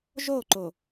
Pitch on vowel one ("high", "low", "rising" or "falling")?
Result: falling